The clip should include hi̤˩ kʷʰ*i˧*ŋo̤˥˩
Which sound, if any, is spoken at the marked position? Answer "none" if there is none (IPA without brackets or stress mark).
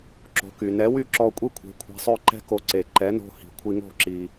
i˧